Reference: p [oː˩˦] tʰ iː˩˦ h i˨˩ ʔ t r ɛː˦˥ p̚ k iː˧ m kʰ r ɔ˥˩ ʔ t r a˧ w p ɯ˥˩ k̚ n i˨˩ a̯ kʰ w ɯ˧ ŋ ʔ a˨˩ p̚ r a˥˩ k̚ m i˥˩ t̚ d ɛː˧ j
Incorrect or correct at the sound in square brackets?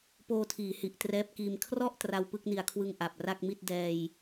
incorrect: oː˧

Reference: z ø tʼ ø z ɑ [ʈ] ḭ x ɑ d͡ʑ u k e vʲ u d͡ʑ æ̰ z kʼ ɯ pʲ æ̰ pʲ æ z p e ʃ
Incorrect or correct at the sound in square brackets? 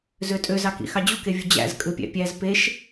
incorrect: k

